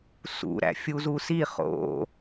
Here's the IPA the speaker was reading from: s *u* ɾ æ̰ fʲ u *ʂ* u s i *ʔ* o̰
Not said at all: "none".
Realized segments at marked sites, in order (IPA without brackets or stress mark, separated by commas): ṵ, z, χ